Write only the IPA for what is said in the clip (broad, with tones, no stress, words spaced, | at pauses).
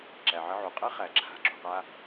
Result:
ǁæ˩ʕɘ˧ ʕu˩qʼɘ˥ χæ˩ǁʰa̤˧ǁṳ˩qa˧